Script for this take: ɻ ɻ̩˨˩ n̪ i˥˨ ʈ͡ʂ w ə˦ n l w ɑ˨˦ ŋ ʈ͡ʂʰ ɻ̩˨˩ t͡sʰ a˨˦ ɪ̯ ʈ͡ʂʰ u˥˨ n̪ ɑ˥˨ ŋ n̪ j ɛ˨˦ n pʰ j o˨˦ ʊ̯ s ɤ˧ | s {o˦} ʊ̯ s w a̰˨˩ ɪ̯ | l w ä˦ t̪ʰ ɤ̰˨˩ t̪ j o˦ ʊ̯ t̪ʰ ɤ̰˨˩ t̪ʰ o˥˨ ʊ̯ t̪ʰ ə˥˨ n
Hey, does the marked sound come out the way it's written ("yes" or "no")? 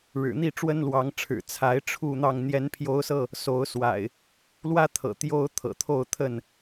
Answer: no